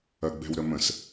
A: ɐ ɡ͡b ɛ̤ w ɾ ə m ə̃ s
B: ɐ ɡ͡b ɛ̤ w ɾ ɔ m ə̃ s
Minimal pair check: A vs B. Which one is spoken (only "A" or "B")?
A